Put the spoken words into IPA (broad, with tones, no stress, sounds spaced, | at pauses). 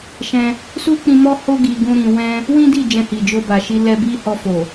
ʃ ɛ̃˧ | s u˦ k͡p ĩ˧ m ɔ˦ h o˦ ɡ i˧ ɡ ũ˦ ɾ ĩ˧ w ɛ̃˦ | w ĩ˦ d i˦˨ d͡ʒ ɛ̃˧ h i˨ d͡ʒ o˧ b a˨ ʃ i˧ l ɛ˧ b i˦ h ɔ˧ f o˨